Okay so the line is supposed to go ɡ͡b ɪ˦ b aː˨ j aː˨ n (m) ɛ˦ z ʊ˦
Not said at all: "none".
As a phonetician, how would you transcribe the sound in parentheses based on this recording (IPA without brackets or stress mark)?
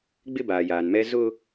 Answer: m